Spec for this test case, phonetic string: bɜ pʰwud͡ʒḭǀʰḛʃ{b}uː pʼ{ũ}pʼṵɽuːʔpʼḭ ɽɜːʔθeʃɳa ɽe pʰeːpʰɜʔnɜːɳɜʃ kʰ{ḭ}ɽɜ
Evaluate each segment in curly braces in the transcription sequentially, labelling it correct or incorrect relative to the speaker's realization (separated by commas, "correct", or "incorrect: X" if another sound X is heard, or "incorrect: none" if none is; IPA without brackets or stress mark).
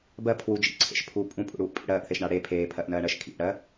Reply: incorrect: pʰ, correct, correct